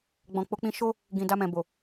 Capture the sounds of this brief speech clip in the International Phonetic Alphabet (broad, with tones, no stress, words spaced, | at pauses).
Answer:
ɡ͡bɔ̃˨k͡po˨˦k͡pĩ˧ ʃo˦ | ɡĩ˨ da˧mɛ̃˨bo˨